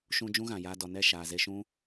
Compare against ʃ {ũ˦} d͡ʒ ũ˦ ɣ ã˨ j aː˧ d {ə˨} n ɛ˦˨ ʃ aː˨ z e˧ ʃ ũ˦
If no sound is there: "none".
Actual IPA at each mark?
ũ˧, ɔ˨

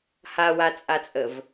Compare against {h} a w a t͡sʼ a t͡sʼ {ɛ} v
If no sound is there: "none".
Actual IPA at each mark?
h, ə

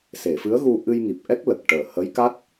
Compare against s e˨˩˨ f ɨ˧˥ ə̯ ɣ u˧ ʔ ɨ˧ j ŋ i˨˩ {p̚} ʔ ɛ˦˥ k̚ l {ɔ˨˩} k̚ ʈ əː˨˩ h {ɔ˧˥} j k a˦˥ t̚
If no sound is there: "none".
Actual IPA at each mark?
p̚, ə˨˩, ə˧˥

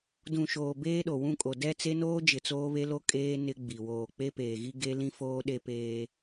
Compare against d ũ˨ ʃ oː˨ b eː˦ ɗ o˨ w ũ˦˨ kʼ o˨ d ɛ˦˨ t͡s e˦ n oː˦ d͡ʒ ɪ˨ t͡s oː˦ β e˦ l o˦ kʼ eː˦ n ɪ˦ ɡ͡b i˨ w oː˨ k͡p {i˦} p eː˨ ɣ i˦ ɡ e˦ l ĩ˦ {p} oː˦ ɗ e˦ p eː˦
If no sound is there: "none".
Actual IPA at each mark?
e˦, f

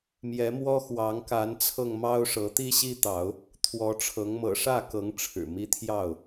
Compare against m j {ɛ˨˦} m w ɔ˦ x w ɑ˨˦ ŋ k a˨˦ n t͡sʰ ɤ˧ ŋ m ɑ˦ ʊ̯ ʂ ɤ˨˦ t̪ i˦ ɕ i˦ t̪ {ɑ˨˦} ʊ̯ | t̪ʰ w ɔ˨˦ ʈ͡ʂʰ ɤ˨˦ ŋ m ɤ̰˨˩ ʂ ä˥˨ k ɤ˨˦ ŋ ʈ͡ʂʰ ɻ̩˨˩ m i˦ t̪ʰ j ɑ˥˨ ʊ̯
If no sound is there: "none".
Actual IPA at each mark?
ɛ˨˦, ɑ˨˦

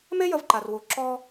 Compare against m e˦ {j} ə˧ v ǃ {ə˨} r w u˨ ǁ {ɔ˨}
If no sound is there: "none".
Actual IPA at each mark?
j, a˨, ɔ˧

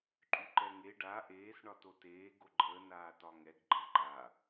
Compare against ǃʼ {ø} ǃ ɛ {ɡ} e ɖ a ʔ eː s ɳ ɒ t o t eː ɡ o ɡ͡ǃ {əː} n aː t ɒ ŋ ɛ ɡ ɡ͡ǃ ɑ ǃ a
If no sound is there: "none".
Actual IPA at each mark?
y, ŋ, əː

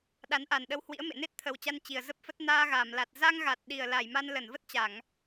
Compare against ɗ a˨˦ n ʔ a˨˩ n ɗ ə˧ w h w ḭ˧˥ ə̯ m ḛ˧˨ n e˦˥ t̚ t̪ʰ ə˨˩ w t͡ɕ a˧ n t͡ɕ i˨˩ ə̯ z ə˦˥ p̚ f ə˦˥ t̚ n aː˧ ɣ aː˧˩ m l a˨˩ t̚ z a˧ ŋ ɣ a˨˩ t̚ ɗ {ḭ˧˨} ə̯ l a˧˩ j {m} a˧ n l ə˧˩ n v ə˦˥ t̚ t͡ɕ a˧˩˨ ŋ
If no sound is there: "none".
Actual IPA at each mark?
i˨˩, m

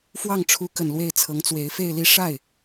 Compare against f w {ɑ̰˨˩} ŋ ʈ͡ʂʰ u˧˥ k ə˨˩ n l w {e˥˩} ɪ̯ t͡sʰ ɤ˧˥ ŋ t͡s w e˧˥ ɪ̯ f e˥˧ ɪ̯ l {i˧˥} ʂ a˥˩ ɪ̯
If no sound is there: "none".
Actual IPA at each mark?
ɑ˥˩, e˥˩, i˥˧

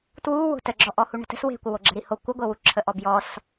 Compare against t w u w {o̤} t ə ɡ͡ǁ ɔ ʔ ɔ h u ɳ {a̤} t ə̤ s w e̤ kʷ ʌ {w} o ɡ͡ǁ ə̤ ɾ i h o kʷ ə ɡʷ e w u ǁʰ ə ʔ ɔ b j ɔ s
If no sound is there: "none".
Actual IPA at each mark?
o̤, ə̤, w

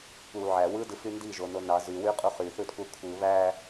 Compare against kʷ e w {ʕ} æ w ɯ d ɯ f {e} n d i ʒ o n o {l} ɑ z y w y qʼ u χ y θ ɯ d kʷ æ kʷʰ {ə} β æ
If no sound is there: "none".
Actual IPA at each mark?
ʕ, y, n, ɯ

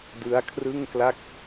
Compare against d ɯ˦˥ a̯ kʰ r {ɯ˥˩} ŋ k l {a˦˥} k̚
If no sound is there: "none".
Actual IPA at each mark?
ɯ˥˩, a˥˩

